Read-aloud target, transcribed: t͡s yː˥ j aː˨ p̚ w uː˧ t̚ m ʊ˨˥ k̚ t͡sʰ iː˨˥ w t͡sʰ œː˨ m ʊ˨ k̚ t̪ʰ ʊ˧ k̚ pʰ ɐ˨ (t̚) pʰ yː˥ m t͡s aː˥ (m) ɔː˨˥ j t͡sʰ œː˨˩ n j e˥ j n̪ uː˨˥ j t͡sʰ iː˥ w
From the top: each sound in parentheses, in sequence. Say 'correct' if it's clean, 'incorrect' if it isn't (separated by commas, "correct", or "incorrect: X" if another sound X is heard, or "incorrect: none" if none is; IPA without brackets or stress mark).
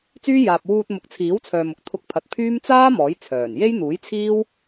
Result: correct, correct